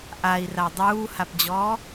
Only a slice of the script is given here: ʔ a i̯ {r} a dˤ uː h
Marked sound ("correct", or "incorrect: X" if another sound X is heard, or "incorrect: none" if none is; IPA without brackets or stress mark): correct